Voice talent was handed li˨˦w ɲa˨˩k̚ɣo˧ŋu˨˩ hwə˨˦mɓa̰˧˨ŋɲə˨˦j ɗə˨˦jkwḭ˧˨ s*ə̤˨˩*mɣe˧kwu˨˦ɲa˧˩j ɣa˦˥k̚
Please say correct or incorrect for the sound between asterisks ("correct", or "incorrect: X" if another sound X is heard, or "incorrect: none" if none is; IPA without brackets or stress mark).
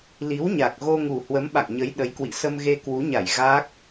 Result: incorrect: ə˧